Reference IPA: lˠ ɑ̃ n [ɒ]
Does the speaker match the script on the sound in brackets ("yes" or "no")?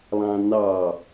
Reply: no